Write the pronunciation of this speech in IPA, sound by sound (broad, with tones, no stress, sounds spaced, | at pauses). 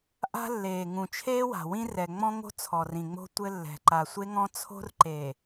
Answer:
ʔ a̤˦ lː eː˨ ŋ ũ˨ t͡ʃʰ eː˦ w a̤˨ w ĩ˦ r ɛ˨ ŋ͡m ɔ̃˦ ŋ o̤˦ t͡sʰ ɔ˨ r ĩ˨ ŋ͡m o̤˦ tʷ ɘ˦ lː ɛ̤˨ ǃ a˨ sʷ e˦ ŋ ɔ̃˦ t͡sʰ o̤˦ r ǃ e˨